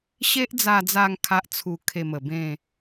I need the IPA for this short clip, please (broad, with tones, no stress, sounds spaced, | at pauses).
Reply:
ɕ e˦ ʔ d͡z a˧ d͡z a˧ ŋ kʰ a˦ ʔ t͡sʰ u˧ kʰ e˧ m ə˨˩ b ẽ˥˧